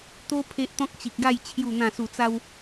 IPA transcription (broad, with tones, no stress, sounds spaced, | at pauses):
t̪ o˦ pʰ e˦ ʔ t̪ ɔ̃˦ k̚ t͡ɕ i˨ k̚ ɡ a˥˧ j t͡ɕʰ j u˨˩ n̪ ã˨˩ s u˨˩ t͡s a˧ w